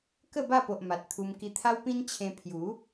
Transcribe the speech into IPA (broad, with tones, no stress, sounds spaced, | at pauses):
k ə˥˧ b a˥˧ p o˨ ʔ m a˨ t̚ t̪ʰ u˧ m k i˧ t̪ʰ a˦ w p ĩ˦ n t͡ɕʰ ẽ˧ pʰ j u˨˦